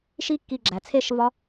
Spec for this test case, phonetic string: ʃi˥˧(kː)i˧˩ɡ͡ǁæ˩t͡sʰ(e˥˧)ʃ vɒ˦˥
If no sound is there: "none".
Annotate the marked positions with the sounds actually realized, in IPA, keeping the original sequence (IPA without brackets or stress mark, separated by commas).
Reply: kː, e˥˧